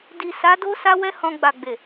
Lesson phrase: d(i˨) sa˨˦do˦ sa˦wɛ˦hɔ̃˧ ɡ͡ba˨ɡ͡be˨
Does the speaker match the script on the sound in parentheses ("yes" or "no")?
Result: yes